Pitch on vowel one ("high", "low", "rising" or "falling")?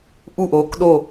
falling